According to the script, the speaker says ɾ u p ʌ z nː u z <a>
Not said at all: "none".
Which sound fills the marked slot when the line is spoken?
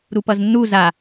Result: a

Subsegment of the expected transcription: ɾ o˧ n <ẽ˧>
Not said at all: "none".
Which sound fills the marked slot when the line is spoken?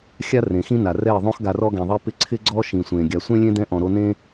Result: ẽ˦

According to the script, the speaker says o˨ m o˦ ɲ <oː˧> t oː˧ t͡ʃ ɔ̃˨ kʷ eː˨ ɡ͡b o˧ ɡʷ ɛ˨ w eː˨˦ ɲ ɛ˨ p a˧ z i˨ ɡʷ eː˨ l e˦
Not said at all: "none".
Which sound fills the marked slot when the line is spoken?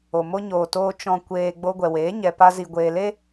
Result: oː˨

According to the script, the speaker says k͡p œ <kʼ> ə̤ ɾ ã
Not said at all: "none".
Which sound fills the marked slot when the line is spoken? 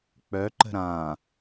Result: ǃ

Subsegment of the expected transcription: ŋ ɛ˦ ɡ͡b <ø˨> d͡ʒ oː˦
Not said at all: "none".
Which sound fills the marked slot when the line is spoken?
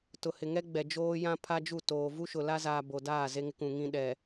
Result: ɛ˨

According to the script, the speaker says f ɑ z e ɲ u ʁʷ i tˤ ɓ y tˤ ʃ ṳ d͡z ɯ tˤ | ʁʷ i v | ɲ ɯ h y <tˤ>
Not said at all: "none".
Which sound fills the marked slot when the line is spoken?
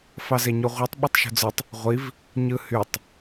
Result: tˤ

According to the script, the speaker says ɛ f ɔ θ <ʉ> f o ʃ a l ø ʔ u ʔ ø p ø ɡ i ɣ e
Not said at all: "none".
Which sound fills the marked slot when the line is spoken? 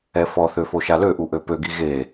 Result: ø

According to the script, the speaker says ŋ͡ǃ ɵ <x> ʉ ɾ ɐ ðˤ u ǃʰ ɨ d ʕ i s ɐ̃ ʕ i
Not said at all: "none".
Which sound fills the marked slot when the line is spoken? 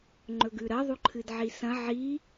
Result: ɡ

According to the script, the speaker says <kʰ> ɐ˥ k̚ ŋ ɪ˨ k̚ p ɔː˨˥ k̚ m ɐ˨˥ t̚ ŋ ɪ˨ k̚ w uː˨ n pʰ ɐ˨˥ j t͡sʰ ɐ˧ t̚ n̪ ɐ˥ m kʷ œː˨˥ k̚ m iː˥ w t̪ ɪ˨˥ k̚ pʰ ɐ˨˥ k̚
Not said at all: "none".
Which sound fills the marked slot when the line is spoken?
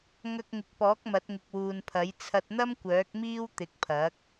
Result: ŋ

